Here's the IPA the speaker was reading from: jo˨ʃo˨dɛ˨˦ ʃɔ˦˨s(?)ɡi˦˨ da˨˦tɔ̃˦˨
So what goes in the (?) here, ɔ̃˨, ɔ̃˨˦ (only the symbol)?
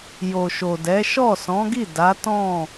ɔ̃˨˦